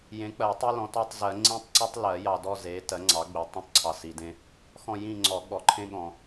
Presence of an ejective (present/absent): absent